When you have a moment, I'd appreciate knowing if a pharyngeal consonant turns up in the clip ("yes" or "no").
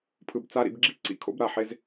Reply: yes